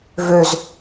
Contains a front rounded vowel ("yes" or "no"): yes